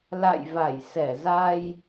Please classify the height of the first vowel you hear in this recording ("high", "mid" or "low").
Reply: low